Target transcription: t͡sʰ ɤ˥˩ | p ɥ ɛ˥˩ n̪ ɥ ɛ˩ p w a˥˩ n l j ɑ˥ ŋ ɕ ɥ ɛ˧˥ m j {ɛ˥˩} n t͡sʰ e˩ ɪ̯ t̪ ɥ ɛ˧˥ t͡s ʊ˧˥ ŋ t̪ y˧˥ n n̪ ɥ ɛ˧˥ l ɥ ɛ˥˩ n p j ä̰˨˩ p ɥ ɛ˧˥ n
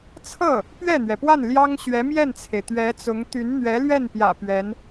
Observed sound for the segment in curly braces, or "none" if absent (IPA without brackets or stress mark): ɛ˥˩